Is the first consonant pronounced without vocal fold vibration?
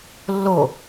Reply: no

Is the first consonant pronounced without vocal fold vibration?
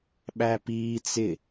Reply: no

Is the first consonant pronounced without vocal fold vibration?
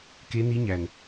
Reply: yes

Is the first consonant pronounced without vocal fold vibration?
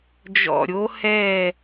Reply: no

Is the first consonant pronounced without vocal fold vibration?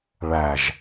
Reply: no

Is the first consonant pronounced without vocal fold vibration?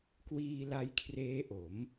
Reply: yes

